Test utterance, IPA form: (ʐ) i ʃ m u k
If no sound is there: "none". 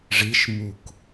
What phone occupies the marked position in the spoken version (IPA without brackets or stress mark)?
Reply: ʐ